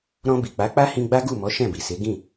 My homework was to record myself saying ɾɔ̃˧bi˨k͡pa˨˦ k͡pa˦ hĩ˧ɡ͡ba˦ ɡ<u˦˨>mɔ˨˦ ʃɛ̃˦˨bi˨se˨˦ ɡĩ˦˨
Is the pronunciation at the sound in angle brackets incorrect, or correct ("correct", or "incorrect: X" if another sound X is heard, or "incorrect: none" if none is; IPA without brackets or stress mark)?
correct